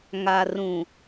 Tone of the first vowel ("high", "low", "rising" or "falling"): low